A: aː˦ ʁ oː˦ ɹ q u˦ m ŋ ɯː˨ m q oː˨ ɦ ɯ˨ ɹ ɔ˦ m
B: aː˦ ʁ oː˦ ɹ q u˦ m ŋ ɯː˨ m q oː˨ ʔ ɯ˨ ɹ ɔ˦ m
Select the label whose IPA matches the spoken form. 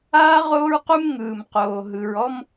A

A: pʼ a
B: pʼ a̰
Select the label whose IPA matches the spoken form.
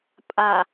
A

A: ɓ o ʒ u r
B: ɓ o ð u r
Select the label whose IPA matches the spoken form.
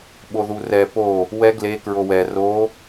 B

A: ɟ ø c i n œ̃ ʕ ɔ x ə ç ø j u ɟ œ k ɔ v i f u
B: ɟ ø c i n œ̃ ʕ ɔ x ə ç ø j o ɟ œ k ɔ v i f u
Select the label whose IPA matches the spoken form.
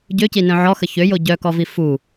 B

